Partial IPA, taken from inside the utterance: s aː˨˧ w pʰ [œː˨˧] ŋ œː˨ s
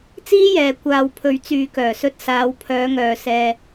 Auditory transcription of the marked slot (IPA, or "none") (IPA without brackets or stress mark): œː˨˧